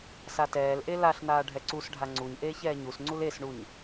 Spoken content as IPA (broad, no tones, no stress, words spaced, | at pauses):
satɛːlʔe laɬnaː ɖʱɛǀusɖʱa ŋ͡ǀuɲʔeːç ɛːɲusŋ͡ǀul esɳuɲ